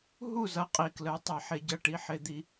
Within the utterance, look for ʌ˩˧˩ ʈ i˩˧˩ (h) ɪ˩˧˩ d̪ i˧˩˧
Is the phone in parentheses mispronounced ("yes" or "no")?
yes